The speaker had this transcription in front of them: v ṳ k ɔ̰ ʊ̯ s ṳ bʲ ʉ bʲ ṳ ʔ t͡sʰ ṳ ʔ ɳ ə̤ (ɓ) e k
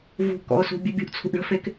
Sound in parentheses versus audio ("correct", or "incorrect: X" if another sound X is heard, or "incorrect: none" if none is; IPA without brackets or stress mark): incorrect: f